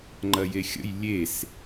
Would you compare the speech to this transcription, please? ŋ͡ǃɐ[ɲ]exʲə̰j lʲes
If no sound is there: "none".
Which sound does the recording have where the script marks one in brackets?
j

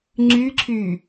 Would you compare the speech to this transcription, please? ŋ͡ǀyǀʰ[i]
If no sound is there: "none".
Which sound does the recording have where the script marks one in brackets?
y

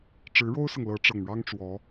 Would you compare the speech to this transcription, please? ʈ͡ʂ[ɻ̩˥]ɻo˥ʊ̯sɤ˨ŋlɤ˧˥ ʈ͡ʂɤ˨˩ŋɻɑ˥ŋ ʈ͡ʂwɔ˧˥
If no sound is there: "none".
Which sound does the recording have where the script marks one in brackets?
ɻ̩˧˥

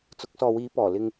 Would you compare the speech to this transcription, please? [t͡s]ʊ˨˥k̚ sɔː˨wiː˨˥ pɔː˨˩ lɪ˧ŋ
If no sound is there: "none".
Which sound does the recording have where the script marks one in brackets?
t͡s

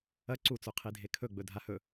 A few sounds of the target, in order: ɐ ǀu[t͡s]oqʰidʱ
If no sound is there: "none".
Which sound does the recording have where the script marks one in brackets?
t͡s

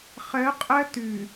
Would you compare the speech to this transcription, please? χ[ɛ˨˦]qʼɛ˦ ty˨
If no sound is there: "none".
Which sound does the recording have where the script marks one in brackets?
ɛ˨˦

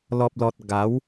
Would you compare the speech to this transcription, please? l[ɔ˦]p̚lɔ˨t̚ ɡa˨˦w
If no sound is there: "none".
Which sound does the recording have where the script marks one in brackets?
ɔ˨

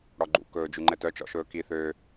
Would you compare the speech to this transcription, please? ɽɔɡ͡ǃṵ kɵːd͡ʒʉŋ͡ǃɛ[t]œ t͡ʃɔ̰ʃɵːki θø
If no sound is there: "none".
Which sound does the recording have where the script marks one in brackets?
t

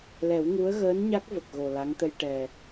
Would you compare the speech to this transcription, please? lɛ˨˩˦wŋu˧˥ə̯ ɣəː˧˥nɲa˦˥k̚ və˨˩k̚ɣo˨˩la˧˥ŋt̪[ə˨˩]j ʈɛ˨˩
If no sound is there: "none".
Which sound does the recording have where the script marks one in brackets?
ə˧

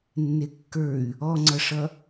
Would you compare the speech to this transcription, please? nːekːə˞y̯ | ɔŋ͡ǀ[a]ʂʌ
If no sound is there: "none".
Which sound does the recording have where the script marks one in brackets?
ʌ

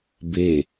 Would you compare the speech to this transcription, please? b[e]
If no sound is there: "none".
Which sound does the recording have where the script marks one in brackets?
e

